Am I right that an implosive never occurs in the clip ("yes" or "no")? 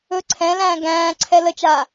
yes